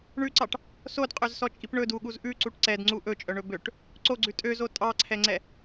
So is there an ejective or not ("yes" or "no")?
yes